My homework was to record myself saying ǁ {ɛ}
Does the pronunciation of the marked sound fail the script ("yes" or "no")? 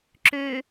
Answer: yes